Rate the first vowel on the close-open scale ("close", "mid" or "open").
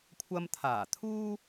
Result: open